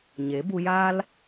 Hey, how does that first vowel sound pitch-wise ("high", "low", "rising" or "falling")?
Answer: rising